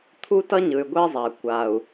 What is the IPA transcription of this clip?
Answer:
t̪ʰ u˦ t ʌ˦ ɲ ɯ˨ y̯ ɡʷ e˦ zˤ a˨ kʷ a˨ u̯

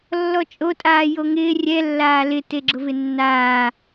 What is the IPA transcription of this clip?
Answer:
lː ɔ t͡ʃʼ o tʼ aː j o ŋ ɪː rʲ ɛ lː aː l ɪ t e ɡ͡ǁ ʊ v ɪ nː aː

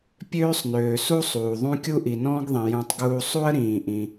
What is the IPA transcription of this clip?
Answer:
pʲ øː˥ sˤ n øː˩ s u˥ sˤ uː˩ ðˤ ũ˥ kʲ u˥ ʔ i˩ n ɔ̃ː˥ ɡ ðˤ ĩ˩ j ũ˧ tˤ ɡ uː˥ sˤ u˥ ə̯ ɾ ĩː˩ ʔ ĩ˩

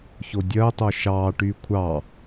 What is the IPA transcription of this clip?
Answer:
ç o dʲ ɜ tˤ o ʃ ɑː ʈ yː kʷʰ ɑ

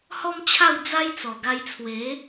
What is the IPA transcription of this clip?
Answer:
h ɔ˦ m t͡ɕʰ a˥˧ w d͡z a˦ j t͡s ɔ˨˩ ɡ a˧ j t͡sʰ w e˨˦

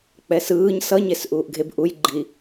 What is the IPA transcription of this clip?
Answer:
k͡p ɛ s ɯː ɲ s ʌ ɲ e s ʔ uː ʔ ɡʱ e b ʔ u j ɡ͡ǃ i

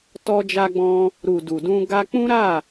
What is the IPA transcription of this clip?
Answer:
t ɔ˧ d͡ʒ a˧ ɡ͡b ɔ̃˧ | ɾ u˨ d u˨ d ũ˧ ɡ a˧ k͡p ũ˦ ɾ a˦˨

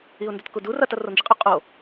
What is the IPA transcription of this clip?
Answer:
i ʊ̯ n d ɵ t k u d u r ɐ t ɐ r o n d͡ʒ i qʼ ɵ qʼ o

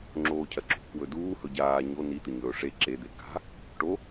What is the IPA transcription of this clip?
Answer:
ŋ͡ǁ oː cʰ ɐ ǁ ṳ k w ɵ d uː h ɵ ɟ aː ɲ o n i t̪ ɨ ɲ ɵː ʂ e ǁ e d̪ e k a̤ | ʈ o

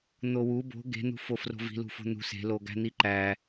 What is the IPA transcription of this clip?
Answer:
n̪ o w u b o̤ ɡ e̤ n̪ ṳ f o f r o̤ v i̤ l ṳ f o̤ n̪ ṳ s e̤ l o ɡ æ̤ n̪ i ǃ æ

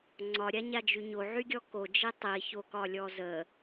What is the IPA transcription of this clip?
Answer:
ŋ͡ǀ ɒ ɾʲ a ɲ a d͡ʒ y ɲ o ʕ y ɡʲ ɔ k o d͡ʒ i tˤ i ç o k ɒ lʲ ɔ z ə

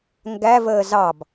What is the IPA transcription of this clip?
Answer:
ŋ ɡ æ v əː z ɑ b

